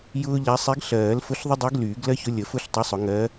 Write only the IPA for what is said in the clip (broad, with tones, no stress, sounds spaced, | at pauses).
j ʊː˥ ʎ a˧˥ sˤ e˧˥ ɡ ɬ ɜː˨˩˦ l f ʊ˧˥ ɬ ðˤ ə˥ dˤ əː˧˥ ɡ l yː˨˩˦ ɡ l ɜ˥ ç ʊ˧˥ lʲ ə˨˩˦ f ʊ˥ ɬ tˤ ʊ˧˥ sˤ ʊ˨˩˦ ŋ ɜː˧˥